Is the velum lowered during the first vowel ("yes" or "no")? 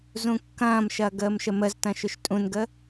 yes